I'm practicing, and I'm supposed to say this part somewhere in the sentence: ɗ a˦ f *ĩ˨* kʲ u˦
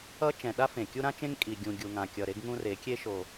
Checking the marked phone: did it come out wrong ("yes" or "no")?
yes